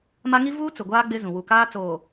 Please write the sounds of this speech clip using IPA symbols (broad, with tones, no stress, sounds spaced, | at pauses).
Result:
m a˦ ŋ i˦ v uː˦ t͡s ʊ˨ ɡʷ aː˦ ɡ͡b ɪ˦ z ũ˨ w u˨ k aː˦ t͡s oː˨